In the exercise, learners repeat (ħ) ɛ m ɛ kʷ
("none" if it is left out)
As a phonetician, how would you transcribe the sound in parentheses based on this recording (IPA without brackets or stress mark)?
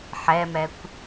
ħ